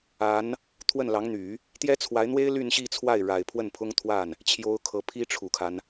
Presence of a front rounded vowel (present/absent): present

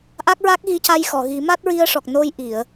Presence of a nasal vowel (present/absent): absent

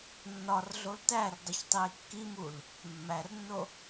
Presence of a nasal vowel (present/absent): absent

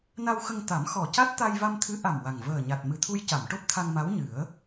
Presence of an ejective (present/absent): absent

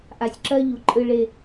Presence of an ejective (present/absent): present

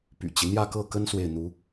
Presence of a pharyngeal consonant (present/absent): absent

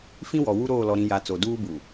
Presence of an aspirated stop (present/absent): absent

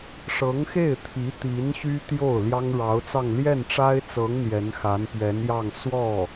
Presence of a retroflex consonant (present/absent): present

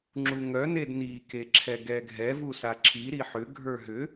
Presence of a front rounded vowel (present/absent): present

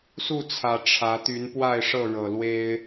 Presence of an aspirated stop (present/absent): present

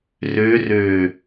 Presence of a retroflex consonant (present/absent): absent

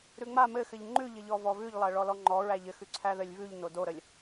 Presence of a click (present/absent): present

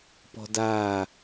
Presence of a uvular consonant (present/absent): absent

